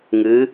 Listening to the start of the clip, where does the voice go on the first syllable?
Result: rising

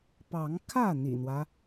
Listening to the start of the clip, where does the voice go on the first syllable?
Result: rising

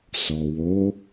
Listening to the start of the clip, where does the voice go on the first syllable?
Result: low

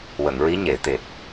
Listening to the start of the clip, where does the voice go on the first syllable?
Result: low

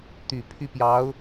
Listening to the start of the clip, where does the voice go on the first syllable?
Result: low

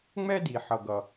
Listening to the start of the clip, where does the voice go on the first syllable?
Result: high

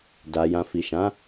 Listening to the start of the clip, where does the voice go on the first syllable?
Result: low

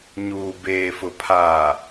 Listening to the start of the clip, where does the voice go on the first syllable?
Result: low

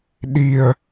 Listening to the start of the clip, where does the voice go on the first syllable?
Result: low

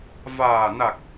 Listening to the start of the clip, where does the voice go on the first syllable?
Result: low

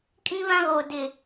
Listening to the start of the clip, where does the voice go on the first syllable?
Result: high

